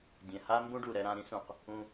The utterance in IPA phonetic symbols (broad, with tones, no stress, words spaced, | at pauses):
dʲɛ̃˨ha˦ mbũ˦ɖu˨ɾɛ˧ɾã˧ ɾĩ˦ sũ˨q | ũ˧